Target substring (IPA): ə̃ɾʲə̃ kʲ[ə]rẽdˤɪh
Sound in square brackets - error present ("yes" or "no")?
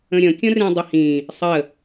yes